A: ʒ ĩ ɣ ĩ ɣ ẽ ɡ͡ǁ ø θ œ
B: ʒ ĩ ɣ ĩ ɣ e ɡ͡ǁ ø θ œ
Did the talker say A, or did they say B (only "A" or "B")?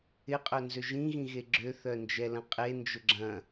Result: B